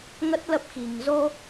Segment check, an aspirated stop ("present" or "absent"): absent